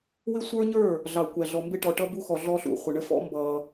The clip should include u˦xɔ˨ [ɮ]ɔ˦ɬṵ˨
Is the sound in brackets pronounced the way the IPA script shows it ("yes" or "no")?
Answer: yes